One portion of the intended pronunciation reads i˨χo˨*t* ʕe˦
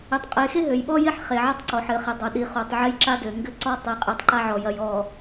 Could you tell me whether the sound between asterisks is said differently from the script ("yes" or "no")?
yes